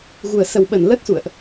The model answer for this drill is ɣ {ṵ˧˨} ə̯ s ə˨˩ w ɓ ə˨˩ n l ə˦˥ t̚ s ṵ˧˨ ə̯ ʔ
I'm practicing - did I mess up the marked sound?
yes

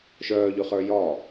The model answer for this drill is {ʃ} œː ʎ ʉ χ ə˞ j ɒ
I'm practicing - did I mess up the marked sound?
no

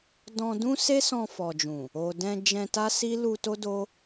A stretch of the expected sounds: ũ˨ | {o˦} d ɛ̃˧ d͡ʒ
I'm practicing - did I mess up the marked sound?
yes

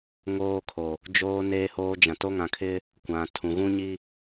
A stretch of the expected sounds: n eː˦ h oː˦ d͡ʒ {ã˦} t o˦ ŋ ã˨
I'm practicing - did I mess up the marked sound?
yes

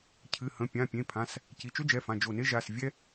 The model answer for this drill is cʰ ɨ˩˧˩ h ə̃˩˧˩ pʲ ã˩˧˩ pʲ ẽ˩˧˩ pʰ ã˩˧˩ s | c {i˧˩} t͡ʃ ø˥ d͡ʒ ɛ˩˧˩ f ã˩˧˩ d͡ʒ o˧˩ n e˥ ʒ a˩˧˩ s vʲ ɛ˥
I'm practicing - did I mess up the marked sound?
yes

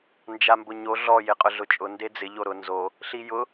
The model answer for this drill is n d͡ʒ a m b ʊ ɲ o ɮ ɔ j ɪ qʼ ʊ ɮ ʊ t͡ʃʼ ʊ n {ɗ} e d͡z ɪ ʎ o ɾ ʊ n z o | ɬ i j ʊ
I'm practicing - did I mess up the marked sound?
yes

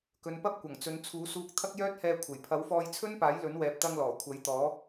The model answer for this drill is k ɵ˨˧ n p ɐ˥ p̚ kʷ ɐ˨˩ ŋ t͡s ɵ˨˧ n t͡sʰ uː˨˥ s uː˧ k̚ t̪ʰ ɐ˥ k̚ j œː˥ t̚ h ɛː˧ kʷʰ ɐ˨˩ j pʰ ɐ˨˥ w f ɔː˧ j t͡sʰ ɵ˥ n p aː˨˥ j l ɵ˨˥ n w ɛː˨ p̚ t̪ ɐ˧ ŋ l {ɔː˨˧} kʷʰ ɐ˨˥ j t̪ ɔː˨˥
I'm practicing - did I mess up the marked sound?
yes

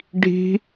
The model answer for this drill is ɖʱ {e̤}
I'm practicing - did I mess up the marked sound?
yes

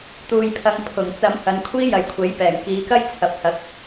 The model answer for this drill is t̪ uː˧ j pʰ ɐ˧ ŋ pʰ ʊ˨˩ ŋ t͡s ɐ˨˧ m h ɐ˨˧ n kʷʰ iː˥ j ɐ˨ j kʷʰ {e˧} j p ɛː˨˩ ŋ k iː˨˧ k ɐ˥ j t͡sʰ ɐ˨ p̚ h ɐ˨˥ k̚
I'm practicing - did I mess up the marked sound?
yes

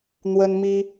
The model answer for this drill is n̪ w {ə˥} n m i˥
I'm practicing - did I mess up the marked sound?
no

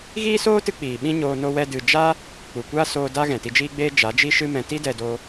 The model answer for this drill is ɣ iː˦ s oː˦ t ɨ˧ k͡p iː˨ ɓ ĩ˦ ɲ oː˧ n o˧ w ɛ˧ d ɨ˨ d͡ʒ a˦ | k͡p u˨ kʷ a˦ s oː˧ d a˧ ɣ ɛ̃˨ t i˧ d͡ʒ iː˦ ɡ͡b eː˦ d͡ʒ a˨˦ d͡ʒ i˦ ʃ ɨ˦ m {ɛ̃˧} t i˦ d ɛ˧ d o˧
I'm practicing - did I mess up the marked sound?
no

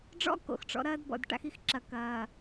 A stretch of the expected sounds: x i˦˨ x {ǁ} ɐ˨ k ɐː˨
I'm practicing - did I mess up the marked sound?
no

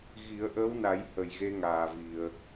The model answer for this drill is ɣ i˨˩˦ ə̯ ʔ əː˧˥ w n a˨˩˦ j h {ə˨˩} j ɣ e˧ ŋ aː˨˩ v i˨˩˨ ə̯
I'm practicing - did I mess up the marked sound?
no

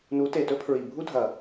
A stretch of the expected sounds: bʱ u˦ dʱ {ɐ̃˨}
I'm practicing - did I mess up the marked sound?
yes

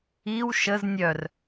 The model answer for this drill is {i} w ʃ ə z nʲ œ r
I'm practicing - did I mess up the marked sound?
no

